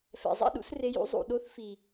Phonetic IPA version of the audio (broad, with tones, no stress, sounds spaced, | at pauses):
f ɛ̰˨ zˤ ɛ̰˦ ɗ ṵ˦ s r e˧ j ṵ˦ zˤ ṵ˨ ɗ o˦ θ f i˨